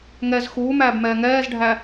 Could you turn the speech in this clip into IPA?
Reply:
ŋɛz xuːmæːbmɛː ŋɛːzɖʱæ

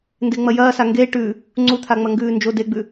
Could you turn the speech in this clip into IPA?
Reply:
ndeŋ͡mɐjɐːsa ŋɡe ʈʉ | ŋ͡ǀut̪ʰaŋ͡mɐ ŋɡʉːnd͡ʒo deɡ͡bʉ

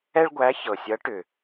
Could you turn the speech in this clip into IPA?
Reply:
ɛ˥ɭɡʷæ˧˥çɤ˨˩sʲʌ˧˥ ʈʏ˨˩

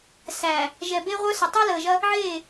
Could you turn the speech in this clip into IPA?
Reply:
sæ˨ | ʒɛ˨be˦ʁʷœ˦sə˨ tˤəː˦ləː˨ʒɐ˦ | ʕeː˦˨

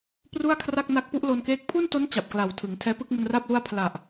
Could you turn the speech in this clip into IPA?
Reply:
pru˥˩a̯kʰra˥˩k̚ na˦˥k̚pu˦˥ʔlo˧nkeː˦˥k̚ pʰu˥˩nto˦˥n t͡ɕa˨˩p̚kla˨˩wtʰɯ˩˦ŋ tʰɛː˦˥pɯ˥˩k̚mu˧n ra˥˩p̚lu˥˩a̯ pʰla˨˩ʔ

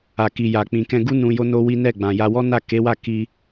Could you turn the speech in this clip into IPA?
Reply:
a˨ki˨ja˨k͡pĩ˨ kɛ̃˧ɡu˦ nũ˧jo˦no˦wi˦ nɛ˦˨ɡ͡bã˨ja˧ wɔ˦na˦˨ke˨˦wa˦˨ ki˧

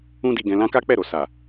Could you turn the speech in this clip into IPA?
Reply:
ũ˦di˧ɡɛ̃˧ lã˦ka˦k͡pɛ˦˨ɾo˨ sa˨

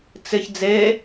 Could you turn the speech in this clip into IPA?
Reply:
t͡sɪç d͡ze

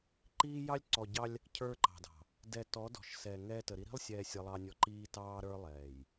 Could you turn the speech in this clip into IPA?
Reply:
ǃiː˦jɑ˦lʲ ǀɔ˨ɟɑ˦lʲ | cʰə˞˦ǃɑ̤˨dɑ̤˨ | dɛ˨tɔ˨˦ dɔ̤˨ʃ sɛː˨ŋɛː˦ tə˨ɾi˦ ɾi̤˦lˠsʲɛː˨ sʲə˦lˠɑ˦nʲɔ˦ ǃiː˦tɑː˦ɾə˞˦ lˠɛː˨j

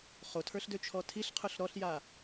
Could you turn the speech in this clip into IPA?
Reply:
χotʰə˞ɬ døt͡ʃʰɔtʰiɬqʰʊɬ ɾɔɬja

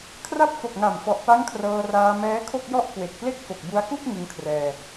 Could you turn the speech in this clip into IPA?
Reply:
kʰra˦˥p̚fo˨˩k̚ŋa˨˩mfɔ˨˩ʔ pa˦˥ŋkʰrɤː˧raː˧ mɛː˦˥kʰo˥˩k̚jɔ˥˩ʔ kwe˨˩k̚ple˥˩k̚fo˨˩k̚ bu˧a̯ku˥˩k̚ ŋɯ˧ŋkʰrɛː˧

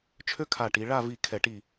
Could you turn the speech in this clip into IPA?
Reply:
t͡ʃʰø˥ kʰa˧˩ ʈi˩˧ɭa˥˨ vi˧˩ kʰɛ˧˩˧ʈi˧˩

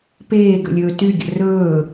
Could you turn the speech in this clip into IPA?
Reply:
peːɡə̰lʲɵː tyɡʲə̰ rɵː

